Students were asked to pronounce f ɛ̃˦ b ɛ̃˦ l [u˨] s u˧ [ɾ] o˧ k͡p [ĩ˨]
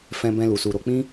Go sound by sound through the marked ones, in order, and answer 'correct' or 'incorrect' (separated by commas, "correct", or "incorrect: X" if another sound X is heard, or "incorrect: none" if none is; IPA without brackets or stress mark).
incorrect: u˧, correct, incorrect: ĩ˦